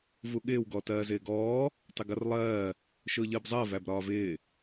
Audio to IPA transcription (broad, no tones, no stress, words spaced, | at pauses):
vuɠɪːw ɡɔtɜːzɪːɡɔː | tˤɪɡʌrlˠɜː | ʃʊːʎəːbzˤɜ væbɾɒːvɪː